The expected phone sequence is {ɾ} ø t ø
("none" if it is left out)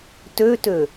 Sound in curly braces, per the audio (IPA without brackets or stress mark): t